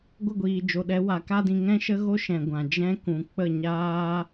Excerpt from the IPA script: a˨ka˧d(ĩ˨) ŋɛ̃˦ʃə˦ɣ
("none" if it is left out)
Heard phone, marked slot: ĩ˨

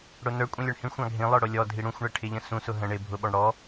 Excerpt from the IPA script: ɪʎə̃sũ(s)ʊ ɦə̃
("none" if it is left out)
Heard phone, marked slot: s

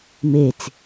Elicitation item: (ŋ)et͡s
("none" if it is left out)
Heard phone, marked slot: m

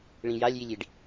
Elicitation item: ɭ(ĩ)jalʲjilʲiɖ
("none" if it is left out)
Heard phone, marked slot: ĩ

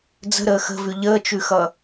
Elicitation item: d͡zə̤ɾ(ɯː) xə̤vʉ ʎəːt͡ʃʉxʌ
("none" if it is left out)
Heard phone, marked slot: əː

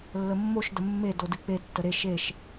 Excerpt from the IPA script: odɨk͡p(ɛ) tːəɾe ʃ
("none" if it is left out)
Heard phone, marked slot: e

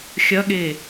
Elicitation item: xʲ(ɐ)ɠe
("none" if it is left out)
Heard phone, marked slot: ɐ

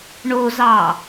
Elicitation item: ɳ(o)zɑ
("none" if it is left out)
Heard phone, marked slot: o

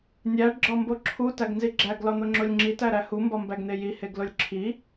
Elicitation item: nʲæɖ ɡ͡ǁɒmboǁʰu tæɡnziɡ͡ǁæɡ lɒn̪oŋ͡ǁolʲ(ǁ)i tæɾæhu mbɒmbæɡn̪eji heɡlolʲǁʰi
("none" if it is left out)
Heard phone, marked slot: ŋ͡ǁ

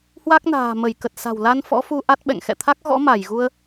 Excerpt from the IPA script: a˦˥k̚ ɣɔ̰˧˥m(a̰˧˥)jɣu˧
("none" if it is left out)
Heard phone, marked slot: a˧˩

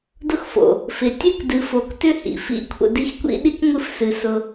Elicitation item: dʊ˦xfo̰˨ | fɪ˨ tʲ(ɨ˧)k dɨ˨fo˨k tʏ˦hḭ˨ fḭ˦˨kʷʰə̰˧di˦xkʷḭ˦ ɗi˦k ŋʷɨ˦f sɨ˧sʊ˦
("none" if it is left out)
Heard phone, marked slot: ɨ˦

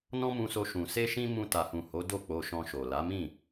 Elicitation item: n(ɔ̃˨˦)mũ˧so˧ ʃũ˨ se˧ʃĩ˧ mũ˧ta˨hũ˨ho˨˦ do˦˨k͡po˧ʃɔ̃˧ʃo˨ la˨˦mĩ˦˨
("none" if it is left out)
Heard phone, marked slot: ɔ̃˦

